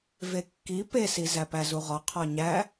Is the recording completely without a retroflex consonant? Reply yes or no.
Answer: yes